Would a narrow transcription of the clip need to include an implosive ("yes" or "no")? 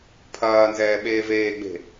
yes